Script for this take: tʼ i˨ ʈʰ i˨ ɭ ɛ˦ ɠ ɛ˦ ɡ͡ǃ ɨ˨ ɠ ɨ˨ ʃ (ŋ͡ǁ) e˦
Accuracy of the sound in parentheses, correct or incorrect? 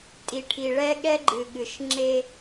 correct